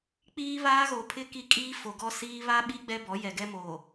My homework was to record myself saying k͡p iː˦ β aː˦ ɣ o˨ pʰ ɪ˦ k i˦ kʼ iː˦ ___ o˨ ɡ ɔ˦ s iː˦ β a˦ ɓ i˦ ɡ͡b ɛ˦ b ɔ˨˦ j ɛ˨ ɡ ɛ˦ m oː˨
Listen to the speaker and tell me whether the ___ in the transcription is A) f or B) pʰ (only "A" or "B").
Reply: A